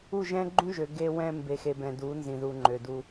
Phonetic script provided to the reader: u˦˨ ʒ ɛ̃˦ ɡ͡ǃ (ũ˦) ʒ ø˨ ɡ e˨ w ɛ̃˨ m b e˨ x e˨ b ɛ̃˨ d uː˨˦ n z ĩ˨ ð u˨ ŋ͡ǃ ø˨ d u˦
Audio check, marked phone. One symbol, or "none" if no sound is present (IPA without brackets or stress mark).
ũ˦